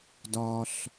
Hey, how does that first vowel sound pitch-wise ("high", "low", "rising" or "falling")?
low